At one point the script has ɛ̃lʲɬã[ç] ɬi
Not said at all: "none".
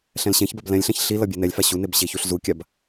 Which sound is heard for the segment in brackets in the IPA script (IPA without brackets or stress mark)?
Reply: ç